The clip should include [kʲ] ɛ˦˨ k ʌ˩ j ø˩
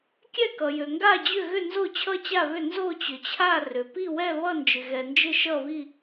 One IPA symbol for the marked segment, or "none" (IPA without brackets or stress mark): kʲ